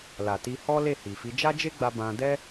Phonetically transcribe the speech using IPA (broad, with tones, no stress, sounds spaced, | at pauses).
l a˨ t i˧ h ɔ˦ l e˦˨ h i˨ f i˨˦ d͡ʒ a˦ d͡ʒ e˦ ɡ͡b a˧ b ã˧ d ɛ˦